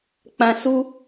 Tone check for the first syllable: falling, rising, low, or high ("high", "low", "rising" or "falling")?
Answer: low